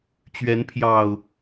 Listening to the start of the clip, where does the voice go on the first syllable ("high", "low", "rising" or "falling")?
rising